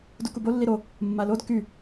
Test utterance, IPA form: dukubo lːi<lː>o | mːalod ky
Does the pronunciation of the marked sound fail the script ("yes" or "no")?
yes